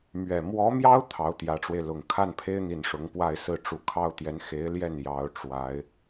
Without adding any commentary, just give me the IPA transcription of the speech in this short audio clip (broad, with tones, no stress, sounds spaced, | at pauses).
m ɥ ɛ˨˩ m w ɔ˧˥ m j ɑ˥ ʊ̯ t̪ʰ ɑ˧˥ ʊ̯ t̪ j ä˧˥ ʈ͡ʂ w e˧ ɪ̯ l ʊ˨˩ ŋ kʰ a˥˩ n pʰ e˥ ɪ̯ n̪ i˨˩ n ʂ ʊ˧˥ ŋ p w a˥˧ ɪ̯ s ɹ̩˥˩ ʈ͡ʂ u˧˥ kʰ ɑ˥ ʊ̯ t̪ j ɛ˧˥ n x e˧˥ ɪ̯ l j ɛ˥˩ n j ɑ˧˥ ʊ̯ ʈ͡ʂ w a˧˥ ɪ̯